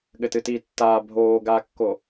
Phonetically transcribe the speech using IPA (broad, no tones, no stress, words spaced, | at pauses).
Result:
ɠɘtɨtiːtːaː bʱoːɡaːkːo